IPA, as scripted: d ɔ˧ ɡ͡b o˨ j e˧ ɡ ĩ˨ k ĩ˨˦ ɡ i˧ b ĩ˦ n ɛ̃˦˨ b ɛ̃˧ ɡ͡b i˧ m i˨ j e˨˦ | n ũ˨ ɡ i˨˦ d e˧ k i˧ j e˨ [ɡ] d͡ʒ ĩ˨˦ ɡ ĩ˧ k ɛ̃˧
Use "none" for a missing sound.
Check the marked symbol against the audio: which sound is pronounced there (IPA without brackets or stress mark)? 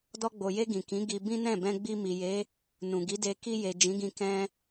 none